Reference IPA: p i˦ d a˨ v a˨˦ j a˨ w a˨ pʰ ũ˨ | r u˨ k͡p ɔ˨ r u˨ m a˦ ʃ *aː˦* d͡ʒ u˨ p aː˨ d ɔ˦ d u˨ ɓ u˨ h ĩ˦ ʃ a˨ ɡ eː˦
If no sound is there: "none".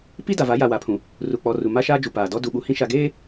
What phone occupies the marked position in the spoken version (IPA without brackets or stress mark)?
aː˦